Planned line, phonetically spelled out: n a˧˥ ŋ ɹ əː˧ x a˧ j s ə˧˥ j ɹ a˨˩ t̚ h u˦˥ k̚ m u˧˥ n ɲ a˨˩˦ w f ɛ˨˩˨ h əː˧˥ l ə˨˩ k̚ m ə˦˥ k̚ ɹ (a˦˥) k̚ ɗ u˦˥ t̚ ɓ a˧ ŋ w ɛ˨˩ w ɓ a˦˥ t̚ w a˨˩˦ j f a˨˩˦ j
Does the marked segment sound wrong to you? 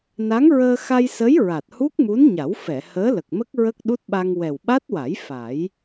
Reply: yes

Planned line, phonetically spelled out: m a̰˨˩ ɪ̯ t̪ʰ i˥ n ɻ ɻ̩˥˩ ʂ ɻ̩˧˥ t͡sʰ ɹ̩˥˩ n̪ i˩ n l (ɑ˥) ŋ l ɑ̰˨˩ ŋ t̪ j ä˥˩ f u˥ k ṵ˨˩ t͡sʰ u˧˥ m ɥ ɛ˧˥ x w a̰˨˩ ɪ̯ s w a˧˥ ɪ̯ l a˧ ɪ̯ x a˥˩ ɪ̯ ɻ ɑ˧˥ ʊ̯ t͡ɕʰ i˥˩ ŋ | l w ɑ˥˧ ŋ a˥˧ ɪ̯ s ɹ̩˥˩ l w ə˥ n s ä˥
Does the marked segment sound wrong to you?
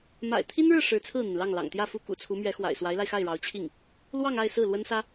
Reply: yes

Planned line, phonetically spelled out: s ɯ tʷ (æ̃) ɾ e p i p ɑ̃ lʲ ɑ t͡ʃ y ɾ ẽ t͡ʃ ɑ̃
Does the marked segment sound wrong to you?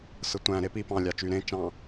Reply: no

